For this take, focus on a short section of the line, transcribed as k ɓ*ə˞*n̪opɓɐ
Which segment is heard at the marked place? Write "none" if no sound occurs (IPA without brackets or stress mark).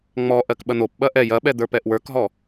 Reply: ɐ